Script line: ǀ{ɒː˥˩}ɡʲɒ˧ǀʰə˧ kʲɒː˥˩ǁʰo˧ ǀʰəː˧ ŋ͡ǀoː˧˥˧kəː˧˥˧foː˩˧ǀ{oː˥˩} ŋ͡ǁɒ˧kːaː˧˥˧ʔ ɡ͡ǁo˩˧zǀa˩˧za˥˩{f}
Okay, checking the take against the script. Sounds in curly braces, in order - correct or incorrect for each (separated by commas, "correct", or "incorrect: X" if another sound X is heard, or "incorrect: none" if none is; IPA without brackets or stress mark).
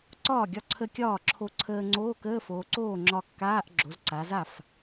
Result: correct, correct, correct